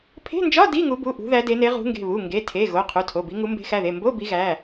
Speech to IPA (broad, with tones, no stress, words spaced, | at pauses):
pʰe̤˧˥˧nd͡ʒɒ˧˥˧ di˧˥˧ŋu˨˦bu˩˧˩ ʔṳ˨˦ðæ˨˦de˨˦ne˨˦ ʁṳ˨˦ŋɡe̤˩˧˩βu˩˧˩ ŋɡe˩˧˩tʰe˩˧˩ ɣo˩˧˩ qʰu˩˧˩tʰo˩˧˩bi˨˦ŋu˨˦ mbe̤˨˦xæ˩˧˩ðe˩˧˩ mbo˧˥˧ bi˨˦ɣæ˩˧˩